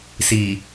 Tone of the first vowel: low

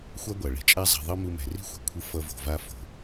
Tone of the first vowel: high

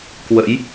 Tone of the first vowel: rising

